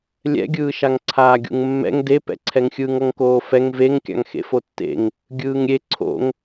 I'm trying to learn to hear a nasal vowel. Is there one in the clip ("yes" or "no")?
no